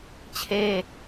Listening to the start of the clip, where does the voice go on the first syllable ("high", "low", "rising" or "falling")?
high